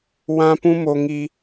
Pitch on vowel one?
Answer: high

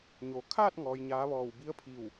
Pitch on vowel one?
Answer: low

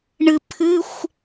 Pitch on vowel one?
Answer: low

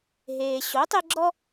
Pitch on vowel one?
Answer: low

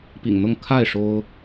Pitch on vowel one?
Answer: low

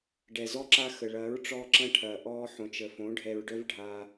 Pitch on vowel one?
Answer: low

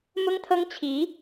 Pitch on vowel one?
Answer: high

